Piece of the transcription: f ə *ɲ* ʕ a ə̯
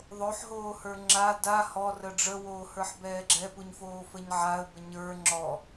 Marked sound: correct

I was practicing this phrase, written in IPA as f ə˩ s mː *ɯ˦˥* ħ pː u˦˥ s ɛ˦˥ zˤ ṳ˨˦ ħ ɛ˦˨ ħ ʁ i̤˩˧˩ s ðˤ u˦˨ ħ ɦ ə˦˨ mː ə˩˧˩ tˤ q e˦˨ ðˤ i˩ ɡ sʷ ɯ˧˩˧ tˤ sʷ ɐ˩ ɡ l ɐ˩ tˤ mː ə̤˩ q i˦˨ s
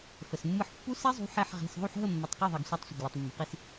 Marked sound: incorrect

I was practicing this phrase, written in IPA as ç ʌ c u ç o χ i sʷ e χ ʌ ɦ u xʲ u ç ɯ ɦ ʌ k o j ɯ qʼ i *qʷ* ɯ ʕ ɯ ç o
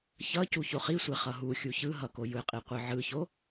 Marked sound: correct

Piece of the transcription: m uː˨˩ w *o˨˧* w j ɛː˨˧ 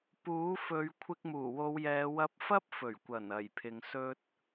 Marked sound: correct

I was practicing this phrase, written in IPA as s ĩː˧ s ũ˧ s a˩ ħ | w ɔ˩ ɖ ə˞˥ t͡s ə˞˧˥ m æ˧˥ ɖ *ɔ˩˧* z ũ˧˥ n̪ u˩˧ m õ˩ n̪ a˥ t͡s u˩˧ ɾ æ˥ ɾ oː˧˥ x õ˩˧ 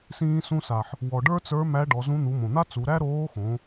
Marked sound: correct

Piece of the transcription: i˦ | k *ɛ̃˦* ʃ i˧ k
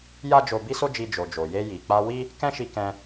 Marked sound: correct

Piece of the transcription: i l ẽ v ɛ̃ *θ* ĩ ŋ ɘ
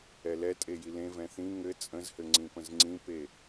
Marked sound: correct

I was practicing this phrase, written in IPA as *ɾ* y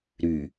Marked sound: correct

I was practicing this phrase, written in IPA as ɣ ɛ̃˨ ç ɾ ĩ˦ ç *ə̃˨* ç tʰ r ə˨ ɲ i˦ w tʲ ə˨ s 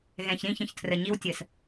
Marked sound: correct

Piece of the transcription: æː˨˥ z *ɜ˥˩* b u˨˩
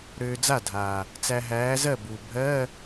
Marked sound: correct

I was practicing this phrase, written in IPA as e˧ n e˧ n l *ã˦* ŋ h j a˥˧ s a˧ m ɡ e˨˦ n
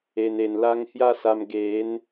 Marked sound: incorrect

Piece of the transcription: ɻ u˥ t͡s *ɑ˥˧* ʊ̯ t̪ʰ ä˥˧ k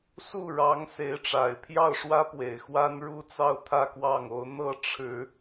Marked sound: correct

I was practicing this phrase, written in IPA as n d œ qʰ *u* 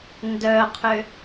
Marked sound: incorrect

